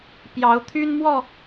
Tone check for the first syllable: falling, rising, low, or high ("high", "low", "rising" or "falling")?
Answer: rising